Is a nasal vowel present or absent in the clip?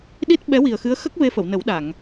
absent